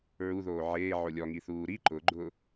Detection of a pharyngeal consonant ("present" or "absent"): present